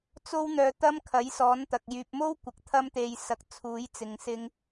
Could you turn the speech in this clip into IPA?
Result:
t͡s o˥ w n̪ œː˧ t̪ ɐ˥ m kʰ ɐ˨˥ j s ɔː˨˥ n t̪ ɐ˨ k̚ j yː˨ p̚ m o˥ w kʷ ɐ˨ k̚ t̪ʰ ɐ˥ m t̪ e˧ j s ɐ˧ k̚ t͡sʰ uː˨˥ j t͡s ɪ˨˧ ŋ s ɪ˥ ŋ

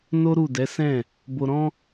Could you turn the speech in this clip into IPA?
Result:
n o˦ ɾ u˦˨ d ɛ˨˦ s ɛ̃˦˨ | b o˧ ɾ ɔ̃˦

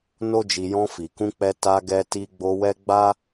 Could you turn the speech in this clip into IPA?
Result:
n o˦ d͡ʒ i˧ j ɔ̃˧ f i˨ k ũ˧ k͡p ɛ˧ t a˧ ɡ ɛ˧ t i˧ ɡ͡b o˧ w ɛ˦ ɡ͡b a˦

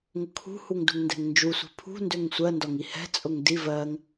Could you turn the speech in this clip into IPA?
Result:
ŋ ʊ kʰ ṳ h u ŋ d ṳ ŋ n d ɛ̤ ŋ n d͡ʒ u sʷ i̤ pʰ ṳ n d ø ŋ sʷ ɜ n d ɒ ŋ i h ɛ̤ t͡sʼ ʊ ŋ d i v ɜ ŋ

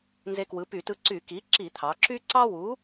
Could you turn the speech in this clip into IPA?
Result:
n z e˧ k w ɯ˩˥ p y˧˩˧ t ɯ˧ ǀ y˧˩˧ k i˩˥ ǁ i˧˩˧ t̪ʰ ɑ˩˧ ǁ y˥ ǀ ɑ˥ w u˩˥

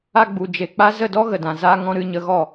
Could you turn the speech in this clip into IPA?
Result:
a˧ ɡ͡b u˨ d͡ʒ e˨ k͡p a˦ z ə˦˨ d ɔ˦ ɣ ə˨ d ã˨ z a˦ ŋ ɔ̃˦ ɾ ɨ˧ ɲ ə˧ ɣ ɔ˦˨

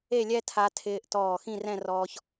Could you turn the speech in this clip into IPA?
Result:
e˥˧ lʲ ɛ˥ tʰ a˧ tʰ ɪː˧ ʔ t ɔː˧˩ x ĩ˥˧ r ɛ̃˥˧ r ɔː˧ ç

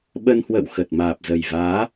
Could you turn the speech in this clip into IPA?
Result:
ɓ ə˧ n h w ə̰˧˨ w x ə˨˩ t̚ m aː˨˩ p̚ z ə˨˩ j v aː˨˦

